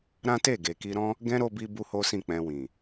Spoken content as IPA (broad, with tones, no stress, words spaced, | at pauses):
ɾã˦te˦˨ ɡe˨ki˧ɾɔ̃˦ | ɡɛ̃˦ɾo˧bi˧ bu˦ho˦sĩ˦˨k͡pɛ̃˧ wĩ˨